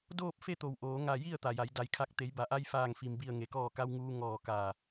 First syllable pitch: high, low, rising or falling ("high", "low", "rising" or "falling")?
falling